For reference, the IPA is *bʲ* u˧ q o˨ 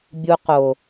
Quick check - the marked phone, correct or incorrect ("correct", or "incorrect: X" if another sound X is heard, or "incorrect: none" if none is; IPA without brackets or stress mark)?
correct